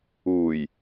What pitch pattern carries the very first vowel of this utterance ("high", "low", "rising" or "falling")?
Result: low